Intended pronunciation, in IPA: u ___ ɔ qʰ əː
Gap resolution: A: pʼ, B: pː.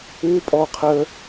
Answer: A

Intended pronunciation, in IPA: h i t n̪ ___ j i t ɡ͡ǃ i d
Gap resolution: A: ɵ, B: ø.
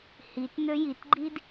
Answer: B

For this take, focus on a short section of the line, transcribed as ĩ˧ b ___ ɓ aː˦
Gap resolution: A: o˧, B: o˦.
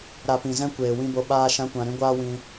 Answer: A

